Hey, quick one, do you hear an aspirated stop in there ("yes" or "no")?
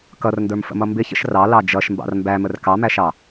no